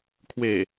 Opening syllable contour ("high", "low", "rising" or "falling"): low